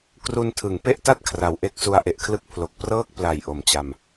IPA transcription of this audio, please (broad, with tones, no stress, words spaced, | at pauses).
kru˧ntʰɯ˩˦ŋpe˥˩ʔta˥˩t̚ kʰra˩˦wʔe˦˥k̚su˧a̯ ʔe˨˩ʔkʰlɯ˦˥k̚ pʰlo˨˩k̚prɤː˥˩k̚ pla˨˩j ʔo˨˩mt͡ɕa˧m